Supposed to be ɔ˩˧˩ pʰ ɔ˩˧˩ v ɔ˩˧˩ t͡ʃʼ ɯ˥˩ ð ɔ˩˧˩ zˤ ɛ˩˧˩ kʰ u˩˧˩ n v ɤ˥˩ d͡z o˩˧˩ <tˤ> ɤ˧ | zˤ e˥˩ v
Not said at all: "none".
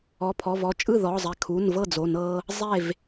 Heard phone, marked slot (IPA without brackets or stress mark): n